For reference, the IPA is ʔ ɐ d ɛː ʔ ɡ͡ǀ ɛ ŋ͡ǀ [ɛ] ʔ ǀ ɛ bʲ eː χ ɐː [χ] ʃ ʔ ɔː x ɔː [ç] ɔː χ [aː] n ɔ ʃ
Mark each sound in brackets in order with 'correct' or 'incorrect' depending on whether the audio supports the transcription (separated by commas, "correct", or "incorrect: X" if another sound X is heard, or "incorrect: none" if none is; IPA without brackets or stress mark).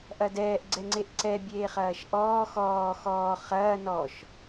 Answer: incorrect: e, incorrect: none, incorrect: x, incorrect: ɐː